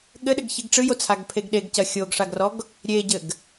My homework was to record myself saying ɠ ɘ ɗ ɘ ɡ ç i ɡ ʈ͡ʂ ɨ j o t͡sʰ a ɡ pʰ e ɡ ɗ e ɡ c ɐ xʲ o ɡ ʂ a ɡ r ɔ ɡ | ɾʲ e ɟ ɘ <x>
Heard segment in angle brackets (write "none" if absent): ɡ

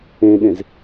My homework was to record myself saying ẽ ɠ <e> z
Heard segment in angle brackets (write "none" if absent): ẽ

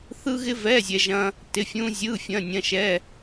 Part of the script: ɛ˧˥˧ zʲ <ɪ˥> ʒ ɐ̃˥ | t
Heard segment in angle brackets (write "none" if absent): ɛ˥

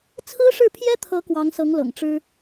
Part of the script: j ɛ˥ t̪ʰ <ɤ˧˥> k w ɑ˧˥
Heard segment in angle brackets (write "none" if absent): ɤ˧˥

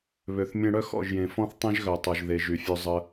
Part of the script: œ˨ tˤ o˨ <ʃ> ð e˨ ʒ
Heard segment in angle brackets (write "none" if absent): ʒ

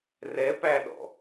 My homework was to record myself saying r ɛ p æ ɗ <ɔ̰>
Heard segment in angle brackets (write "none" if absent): ɔ̰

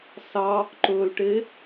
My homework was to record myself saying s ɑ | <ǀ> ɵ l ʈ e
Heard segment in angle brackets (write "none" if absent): ǃ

